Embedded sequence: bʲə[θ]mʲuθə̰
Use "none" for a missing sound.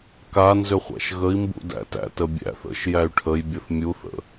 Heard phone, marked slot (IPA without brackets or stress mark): θ